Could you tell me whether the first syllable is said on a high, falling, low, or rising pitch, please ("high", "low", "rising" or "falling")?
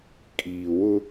low